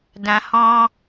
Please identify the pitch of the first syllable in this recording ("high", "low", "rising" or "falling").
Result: low